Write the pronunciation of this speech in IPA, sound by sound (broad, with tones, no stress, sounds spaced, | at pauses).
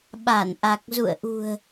ɓ a˧˩ n ʔ a˨˩ k̚ z ṵ˧˨ ə̯ ʔ ṳ˨˩ ə̯